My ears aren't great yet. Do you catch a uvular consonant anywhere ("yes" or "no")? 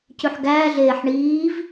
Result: no